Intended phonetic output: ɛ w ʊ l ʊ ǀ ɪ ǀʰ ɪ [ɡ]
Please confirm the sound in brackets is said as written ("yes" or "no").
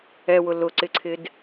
no